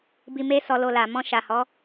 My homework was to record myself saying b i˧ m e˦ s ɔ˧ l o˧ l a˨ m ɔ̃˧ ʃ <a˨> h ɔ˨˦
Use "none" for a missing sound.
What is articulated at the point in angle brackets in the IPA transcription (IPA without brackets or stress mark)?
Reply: a˨